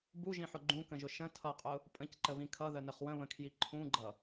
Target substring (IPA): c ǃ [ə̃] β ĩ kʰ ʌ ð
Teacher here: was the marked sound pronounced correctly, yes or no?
no